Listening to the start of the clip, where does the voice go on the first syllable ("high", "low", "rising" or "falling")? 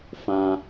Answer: high